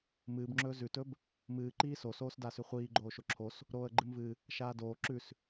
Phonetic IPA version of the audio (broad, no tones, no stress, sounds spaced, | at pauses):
m ɨː b ŋ͡ǁ ɵː z ʉ t ɵ b | m ɨː ǃ iː s o s oː s d a s ʉ χʷ iː ɡ͡ǃ oː ʃ o ǁʰ o s | ɾ oː ə̯ ɡ͡ǃ ɨ m v ɨ | ʃ aː d oː ǁ ʉ s